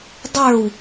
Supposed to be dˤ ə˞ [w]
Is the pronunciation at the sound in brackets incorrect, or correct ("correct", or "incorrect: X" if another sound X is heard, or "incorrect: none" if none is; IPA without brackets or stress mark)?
correct